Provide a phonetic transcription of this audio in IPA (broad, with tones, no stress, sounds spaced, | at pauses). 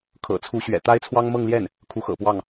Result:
kʰ ɤ̰˨˩ t͡sʰ u˧˥ ɕ ɥ ɛ̰˨˩ t̪ a˥ ɪ̯ t͡sʰ w ɑ˥ ŋ m ɤ˥˧ ŋ l j ɛ˥˩ n | kʰ u˧˥ x ɤ̰˨˩ p w ɑ˥˩ ŋ